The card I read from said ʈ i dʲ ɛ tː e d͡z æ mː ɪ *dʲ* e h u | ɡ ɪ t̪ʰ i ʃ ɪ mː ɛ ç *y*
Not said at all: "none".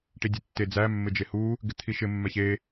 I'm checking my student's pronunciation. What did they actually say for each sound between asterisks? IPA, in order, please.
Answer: d͡ʒ, e

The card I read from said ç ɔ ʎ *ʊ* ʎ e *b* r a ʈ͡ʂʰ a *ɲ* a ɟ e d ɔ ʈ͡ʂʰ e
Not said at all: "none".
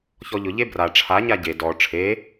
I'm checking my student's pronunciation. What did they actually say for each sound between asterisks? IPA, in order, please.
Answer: ʊ, b, ɲ

